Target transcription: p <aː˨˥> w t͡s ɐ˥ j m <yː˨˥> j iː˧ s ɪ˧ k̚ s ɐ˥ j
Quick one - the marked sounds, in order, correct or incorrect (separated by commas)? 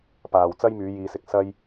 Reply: incorrect, correct